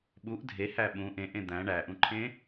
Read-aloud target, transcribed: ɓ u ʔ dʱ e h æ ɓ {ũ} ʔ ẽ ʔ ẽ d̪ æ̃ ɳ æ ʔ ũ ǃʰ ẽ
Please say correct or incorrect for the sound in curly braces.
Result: correct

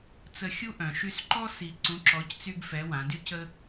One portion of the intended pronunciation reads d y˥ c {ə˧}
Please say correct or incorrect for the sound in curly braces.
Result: incorrect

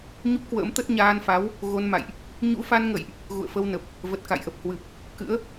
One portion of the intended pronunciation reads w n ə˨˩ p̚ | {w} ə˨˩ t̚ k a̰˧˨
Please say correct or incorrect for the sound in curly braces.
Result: incorrect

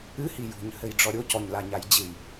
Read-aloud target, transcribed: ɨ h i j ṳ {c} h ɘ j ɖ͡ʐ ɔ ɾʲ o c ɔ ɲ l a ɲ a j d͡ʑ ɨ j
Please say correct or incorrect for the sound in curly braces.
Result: incorrect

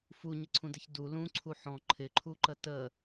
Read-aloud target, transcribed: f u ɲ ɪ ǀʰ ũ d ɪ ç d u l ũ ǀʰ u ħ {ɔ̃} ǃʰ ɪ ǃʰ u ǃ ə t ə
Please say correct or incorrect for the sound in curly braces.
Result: correct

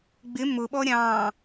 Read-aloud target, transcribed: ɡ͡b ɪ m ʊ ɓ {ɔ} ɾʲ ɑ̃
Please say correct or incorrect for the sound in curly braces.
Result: correct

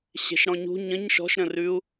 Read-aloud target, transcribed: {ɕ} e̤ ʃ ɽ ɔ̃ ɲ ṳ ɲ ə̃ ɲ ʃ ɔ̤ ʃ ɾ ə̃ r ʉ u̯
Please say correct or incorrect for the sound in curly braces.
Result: correct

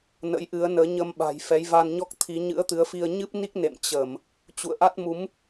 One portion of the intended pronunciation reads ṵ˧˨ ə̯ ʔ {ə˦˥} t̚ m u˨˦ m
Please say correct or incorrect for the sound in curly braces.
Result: incorrect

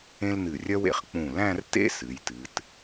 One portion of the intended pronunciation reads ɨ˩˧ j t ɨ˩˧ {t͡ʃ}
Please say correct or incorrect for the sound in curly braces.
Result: incorrect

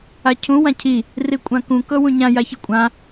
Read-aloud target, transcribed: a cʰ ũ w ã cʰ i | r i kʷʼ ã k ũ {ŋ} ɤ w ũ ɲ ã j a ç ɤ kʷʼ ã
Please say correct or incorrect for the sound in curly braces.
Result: incorrect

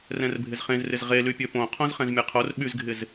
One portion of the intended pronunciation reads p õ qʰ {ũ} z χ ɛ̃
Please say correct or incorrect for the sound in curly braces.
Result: incorrect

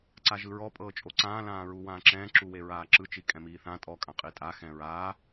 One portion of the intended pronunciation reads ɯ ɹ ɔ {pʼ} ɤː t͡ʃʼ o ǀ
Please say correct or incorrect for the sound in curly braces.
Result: correct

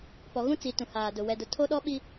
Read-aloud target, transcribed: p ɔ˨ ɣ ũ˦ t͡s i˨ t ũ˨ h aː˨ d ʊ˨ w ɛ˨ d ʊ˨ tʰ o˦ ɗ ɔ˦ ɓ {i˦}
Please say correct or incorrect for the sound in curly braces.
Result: correct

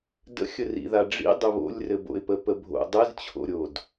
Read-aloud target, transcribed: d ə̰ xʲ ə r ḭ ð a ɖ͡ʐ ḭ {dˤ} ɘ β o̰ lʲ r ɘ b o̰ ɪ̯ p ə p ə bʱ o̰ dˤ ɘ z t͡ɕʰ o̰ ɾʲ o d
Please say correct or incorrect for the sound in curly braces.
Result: correct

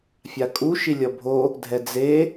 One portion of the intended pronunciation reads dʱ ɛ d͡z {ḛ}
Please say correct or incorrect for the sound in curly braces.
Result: incorrect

